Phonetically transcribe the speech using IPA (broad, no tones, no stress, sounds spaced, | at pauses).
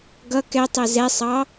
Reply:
ɡ ʌ k ɛ tˤ ɛ z ɛ sˤ ɑ